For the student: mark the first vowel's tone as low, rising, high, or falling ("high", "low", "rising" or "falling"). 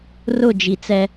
falling